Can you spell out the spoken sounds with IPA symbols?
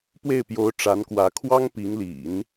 p w e˥˩ ɪ̯ p j o˧˥ ʊ̯ ʈ͡ʂ a˧˥ n k w ä˧˥ kʰ w ɑ˥ ŋ p i˧˥ ŋ l ḭ˨˩˦ n

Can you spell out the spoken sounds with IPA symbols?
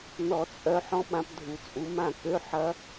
n ɔ˨˩˦ t͡sʼ œ˨˦ ħ ɔ̃˦˥ ɓ ã˨˦ p dʱ u˨˩˦ t͡sʼ u˨˦ m ã˥˨ k ø˧˥˧ ħ ɐ˦˥

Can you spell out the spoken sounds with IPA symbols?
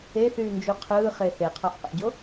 e θ yː n d͡ʒ u qʰ ɯː χ e θ e qʰ ɑ ʔ q æ̰ ɟ o

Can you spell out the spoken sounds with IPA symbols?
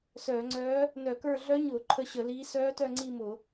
s œː˧˩˧ ŋ͡ǀ œː˧˥ | n œ˧˩˧ k ə˞˦˨ ɮ œ˧˥ ɲ ʊː˧˩˧ ǃʰ ə˦˨ ɕ ə˧˩˧ l iː˧˥ s œː˧˥ t œ˦˨ ŋ͡ǀ i˦˨ m ʊ˧˩˧

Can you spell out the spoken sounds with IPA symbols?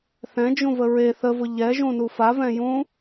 θ ɛ̃ d͡ʒ ũ v ə ɹ e θ ə v ʊ ʎ ɛ ʒ ũ n u f a v ɛ̃ j ũ

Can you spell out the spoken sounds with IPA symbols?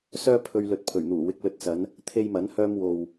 s œː˥ pʰ ɵ˧ ɥ l ɵ˨ t̚ pʰ ɵ˨˩ ɥ n̪ uː˨˩ w ɪ˨ k̚ l ɵ˧ t̚ s ɐ˨˧ n | t̪ʰ e˧ j m ɐ˨˥ n h œː˧ m w o˨ w

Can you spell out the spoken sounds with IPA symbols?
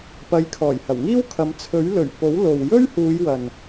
p ɐ˨˧ j kʰ ɔː˨˩ j h ɐ˨˩ w ŋ iː˥ w kʰ ɐ˨˧ m t͡sʰ ɵ˨˥ ɥ l ɵ˨˩ ɥ p o˨˥ w l o˨ w j ɵ˥ ɥ h uː˨˧ j w ɐ˨ n

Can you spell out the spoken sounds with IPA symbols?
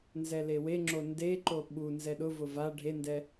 n z ɛ l e w e ŋ͡ǁ o n d e ǃ o ɓ u n z ɛ ɗ ʊ v ʊ v a ɖʱ e n d ɛ

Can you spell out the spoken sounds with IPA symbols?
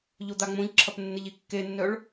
ʎ o d̪ a ŋ͡m õ ʎ ǁʰ ɐ p nː ɪ ʎ i kː e nː œ ɭ

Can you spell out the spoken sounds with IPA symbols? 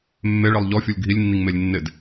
mː e ɭ i lˠ ʎ ɔ fʲ u lʲ ɡʱ i lʲ nː i ŋ m e lʲ nː ɪ d

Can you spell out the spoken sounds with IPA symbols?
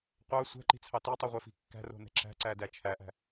qʷ ɑ sʷ ɛ̤ ǃ i̤ t͡sʰ ɑ t i tˤ i ʁʷ ɛ f i̤ kː æ̤ r o̤ n ɛ̤ ǁ æ̤ ǀ æ d æ t͡ʃʰ æ ʔ æ̤

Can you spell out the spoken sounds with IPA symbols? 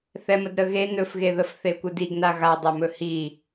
θ ɛ m ə d ɾ ə ɣ e n ɵ f ɣ e ð ə f θ e kʷ ɨ d i ɡ n a ɣ a dˤ ɜ m ɵ h i

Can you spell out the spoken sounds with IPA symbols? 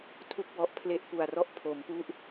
tʰ u˥˩ k̚ w ɔ˦˥ ʔ pʰ l e˦˥ ʔ p u˨˩ a̯ r ɔ˦˥ ʔ pʰ o˩˦ m p u˦˥ ʔ

